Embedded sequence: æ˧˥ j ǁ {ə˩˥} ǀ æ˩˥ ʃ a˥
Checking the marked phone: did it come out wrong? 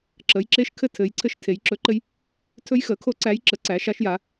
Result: no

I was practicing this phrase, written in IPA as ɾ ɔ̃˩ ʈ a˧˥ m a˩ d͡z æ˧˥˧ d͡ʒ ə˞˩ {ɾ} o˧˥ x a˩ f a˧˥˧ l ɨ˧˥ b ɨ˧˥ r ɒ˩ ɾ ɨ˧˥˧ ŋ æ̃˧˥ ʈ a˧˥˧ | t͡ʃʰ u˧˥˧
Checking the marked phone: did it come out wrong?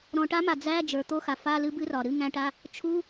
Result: yes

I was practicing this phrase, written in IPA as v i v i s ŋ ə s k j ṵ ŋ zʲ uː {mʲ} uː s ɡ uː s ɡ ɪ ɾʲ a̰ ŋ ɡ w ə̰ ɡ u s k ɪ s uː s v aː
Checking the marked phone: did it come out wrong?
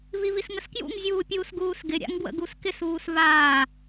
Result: yes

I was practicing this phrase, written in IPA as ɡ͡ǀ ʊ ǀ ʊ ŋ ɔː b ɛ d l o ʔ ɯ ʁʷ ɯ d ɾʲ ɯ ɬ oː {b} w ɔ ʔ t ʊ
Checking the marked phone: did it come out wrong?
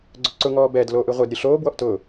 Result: no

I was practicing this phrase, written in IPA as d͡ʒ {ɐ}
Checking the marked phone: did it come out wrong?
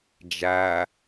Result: yes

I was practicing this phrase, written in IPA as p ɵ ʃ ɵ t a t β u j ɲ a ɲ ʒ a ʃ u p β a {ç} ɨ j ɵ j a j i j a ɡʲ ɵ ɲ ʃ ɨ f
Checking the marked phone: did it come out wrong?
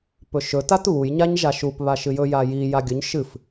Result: yes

